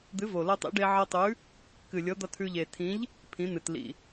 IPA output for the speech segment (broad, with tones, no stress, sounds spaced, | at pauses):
d̪ ɨ˨˥ v o˨˩ l ɤ˧ tˤ ḭ˨˥ ɖ e˧ ʕ ɤ˧ tˤ ʉ˨˥ | k ɨ˨˩ lʲ ɤ˨˥ d̪ ʌ˧ tʰ ʉ˧ ʎ e˨˩ tʰ ĩ˨˥ ʎ | pʰ ĩ˨˥ n̪ ɨ˨˩ t l ḭ˨˩